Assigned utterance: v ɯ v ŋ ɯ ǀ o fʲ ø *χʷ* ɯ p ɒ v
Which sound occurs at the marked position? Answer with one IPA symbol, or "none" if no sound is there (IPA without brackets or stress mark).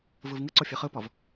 χ